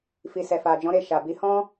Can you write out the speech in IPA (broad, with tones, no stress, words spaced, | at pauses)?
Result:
fi˨sɛ˨fa˨d͡ʒɔ̃˨˦ ɾe˧ʃa˨bi˨˦ hɔ̃˦